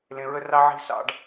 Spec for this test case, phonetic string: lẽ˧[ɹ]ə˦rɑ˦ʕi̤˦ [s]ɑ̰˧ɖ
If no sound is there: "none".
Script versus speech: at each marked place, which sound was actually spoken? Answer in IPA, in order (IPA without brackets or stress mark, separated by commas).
ɹ, s